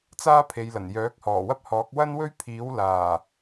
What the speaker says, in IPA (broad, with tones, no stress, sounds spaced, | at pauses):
t͡s aː˥ pʰ e˨˧ j l ɐ˨˩ n j œː˨˥ k̚ h ɔː˨˩ w ɐ˥ p̚ h ɔː˨˥ k̚ w ɐ˥ n w ɵ˥ ɥ pʰ iː˨˥ w l aː˨˩